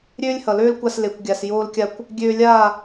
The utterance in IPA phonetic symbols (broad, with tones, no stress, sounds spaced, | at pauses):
ɾʲ øː˦ lʲ h ʌ˨ l øː˦ l kʷ a˧ s l e˨ kʷ ɡʲ a˨ s j oː˦ l kʲ a˦ kʷ | ɡʲ øː˧ lʲ aː˦˨